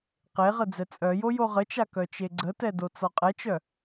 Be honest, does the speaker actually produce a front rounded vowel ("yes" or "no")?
yes